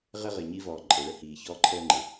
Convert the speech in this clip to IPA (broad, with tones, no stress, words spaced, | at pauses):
ʁɪ˥ʁɪ˩ɲi˥vɔː˩ ǃʼɘ˩ɭə˧hiː˩ çɔː˥ǃʰəː˥ŋ͡ǃɪ˩